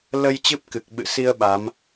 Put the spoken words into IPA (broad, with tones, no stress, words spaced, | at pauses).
lə˧j t͡ɕɨ˦˥p̚kɨ˨˩k̚ɓɨ̰˧˨si˧ə̯ ɓa˨˦m